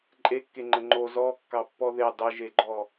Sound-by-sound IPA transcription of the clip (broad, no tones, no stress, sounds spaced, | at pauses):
ǃʼ e kː e ŋ͡ǃ ə ŋ͡ǃ o z ɔ kː ɑ pː ɔ ð e dˤ ə ʒ e ɡ͡ǃ ɔ